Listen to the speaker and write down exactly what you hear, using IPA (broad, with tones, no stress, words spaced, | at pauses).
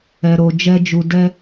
ɛ˨ɾo˨d͡ʒɛ˧d͡ʒu˨ dɛ˧